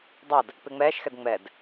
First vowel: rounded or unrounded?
unrounded